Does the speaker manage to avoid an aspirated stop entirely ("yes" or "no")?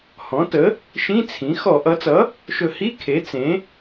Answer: no